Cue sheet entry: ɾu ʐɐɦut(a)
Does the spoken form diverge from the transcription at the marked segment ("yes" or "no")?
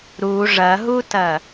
yes